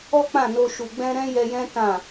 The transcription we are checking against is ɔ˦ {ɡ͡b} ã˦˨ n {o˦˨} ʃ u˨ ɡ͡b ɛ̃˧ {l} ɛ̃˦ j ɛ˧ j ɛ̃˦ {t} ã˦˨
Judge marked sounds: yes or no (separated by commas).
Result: no, no, no, yes